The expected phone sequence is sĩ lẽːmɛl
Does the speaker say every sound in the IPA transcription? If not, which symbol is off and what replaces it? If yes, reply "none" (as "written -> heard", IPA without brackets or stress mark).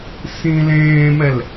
none